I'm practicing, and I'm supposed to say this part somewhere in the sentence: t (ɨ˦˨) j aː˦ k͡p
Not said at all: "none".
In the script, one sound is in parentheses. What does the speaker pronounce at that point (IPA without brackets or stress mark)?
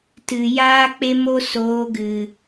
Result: ɨ˨